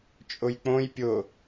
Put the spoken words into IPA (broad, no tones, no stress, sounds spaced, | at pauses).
t͡ʃʼ ʊ j k͡p õ j pʲ ʊ